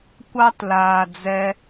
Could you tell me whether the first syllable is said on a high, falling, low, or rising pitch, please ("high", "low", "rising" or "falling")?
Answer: high